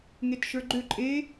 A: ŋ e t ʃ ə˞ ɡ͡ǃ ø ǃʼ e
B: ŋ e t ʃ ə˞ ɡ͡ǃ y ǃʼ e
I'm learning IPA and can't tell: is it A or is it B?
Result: A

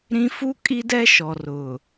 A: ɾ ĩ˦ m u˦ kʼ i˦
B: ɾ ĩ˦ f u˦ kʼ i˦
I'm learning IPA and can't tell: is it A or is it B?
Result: B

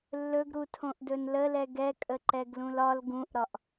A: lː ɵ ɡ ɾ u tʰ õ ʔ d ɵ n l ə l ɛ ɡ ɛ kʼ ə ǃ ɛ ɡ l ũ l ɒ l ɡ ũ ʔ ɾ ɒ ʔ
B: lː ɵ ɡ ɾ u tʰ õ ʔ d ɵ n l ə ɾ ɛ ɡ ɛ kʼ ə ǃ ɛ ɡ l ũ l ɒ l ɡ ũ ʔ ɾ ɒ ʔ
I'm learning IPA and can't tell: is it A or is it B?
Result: A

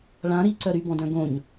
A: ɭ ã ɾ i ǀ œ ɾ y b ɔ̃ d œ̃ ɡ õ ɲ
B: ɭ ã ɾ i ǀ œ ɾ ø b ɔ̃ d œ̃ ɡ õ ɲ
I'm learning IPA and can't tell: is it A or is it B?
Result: A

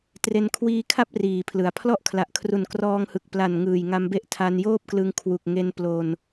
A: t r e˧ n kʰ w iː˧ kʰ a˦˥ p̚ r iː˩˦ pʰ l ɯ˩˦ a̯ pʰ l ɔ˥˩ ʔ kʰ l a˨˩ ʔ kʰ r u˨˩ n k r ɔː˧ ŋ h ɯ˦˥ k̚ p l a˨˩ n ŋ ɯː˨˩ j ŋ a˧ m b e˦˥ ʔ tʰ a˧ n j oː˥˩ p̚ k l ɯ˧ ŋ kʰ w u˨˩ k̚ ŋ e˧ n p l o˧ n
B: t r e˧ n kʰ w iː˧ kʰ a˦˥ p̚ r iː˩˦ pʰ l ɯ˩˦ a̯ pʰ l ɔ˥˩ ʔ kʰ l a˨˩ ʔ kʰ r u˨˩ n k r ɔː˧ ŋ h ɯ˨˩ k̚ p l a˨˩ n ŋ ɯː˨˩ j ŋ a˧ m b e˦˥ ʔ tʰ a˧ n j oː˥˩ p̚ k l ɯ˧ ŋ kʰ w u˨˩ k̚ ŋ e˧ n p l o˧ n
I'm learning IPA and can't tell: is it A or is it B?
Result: B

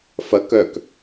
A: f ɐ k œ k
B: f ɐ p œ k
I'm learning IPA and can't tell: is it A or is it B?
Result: A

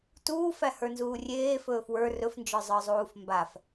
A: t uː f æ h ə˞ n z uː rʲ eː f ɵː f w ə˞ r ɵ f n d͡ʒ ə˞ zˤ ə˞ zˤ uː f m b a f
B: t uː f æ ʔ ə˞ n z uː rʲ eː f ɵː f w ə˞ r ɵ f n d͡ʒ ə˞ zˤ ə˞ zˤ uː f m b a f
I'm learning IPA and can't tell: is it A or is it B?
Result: A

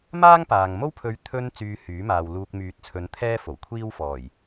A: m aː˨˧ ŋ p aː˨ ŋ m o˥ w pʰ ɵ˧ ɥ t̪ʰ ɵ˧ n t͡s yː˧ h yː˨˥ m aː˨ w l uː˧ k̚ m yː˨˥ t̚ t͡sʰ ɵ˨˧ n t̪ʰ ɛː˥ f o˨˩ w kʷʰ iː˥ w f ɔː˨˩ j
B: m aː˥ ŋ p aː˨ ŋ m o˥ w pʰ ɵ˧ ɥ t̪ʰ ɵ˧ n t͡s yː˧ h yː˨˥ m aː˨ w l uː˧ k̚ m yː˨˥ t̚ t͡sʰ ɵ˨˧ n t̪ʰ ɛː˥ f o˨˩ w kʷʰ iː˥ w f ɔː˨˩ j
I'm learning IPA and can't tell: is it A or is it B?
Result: B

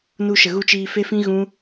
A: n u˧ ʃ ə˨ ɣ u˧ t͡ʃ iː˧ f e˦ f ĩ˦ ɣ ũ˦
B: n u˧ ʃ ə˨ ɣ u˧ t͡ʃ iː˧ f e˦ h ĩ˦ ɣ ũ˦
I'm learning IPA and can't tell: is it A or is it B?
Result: A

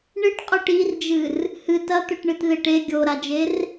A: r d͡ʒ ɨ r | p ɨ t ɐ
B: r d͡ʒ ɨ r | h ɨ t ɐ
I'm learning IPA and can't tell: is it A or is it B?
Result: B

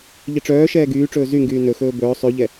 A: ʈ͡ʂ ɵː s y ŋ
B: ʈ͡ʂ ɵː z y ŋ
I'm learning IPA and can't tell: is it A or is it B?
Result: B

